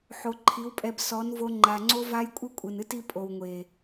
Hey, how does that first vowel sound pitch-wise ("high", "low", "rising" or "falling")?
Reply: low